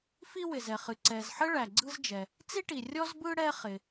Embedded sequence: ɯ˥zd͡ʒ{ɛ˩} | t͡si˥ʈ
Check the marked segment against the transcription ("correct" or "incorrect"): correct